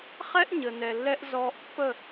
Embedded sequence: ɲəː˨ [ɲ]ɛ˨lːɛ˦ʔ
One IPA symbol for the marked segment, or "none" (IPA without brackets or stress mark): n